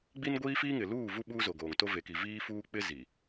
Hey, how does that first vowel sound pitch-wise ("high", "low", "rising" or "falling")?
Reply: high